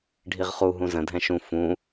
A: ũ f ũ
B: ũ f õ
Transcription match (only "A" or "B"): A